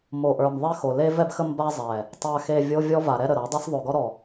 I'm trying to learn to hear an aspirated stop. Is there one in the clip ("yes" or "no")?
no